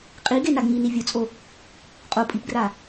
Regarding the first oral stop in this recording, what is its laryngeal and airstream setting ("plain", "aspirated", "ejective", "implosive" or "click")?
ejective